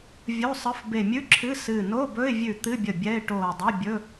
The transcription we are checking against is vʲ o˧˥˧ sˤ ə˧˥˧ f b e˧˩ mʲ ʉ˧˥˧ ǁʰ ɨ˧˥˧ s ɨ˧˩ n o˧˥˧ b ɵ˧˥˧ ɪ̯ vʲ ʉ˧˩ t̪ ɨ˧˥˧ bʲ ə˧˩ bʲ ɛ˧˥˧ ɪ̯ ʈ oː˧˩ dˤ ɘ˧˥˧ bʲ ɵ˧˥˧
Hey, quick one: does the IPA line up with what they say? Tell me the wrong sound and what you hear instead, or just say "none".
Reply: none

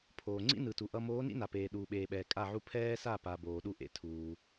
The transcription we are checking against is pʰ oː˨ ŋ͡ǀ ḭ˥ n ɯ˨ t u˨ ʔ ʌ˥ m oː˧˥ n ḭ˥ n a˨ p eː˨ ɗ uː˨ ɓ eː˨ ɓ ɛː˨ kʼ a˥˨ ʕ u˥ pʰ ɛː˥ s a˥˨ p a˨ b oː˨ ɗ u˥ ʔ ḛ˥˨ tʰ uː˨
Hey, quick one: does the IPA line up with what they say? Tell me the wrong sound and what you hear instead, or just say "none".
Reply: none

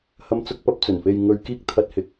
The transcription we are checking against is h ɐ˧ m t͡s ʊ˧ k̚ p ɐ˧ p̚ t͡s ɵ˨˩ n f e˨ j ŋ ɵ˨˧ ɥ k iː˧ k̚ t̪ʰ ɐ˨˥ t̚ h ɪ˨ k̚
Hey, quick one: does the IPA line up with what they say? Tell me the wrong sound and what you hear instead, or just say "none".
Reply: none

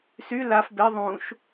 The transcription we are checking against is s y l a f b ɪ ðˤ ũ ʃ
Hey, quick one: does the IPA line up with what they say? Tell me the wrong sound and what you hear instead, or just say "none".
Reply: none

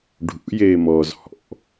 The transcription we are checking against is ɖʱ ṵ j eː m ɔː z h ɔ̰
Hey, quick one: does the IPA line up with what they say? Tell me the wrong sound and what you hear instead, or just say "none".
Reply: none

